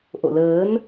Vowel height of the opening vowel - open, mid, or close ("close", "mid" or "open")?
mid